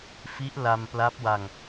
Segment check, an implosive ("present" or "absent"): absent